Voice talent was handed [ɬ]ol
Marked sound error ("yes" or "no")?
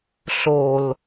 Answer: no